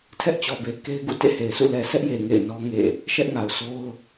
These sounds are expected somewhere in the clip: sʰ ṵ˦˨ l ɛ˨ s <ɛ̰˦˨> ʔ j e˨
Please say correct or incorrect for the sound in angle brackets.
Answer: incorrect